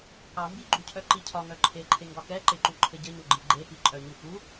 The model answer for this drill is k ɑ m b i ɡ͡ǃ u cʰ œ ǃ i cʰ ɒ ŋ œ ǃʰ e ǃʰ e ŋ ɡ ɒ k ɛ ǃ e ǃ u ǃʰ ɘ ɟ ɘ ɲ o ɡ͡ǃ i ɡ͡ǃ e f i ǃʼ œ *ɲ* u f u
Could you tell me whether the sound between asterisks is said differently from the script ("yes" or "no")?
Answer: no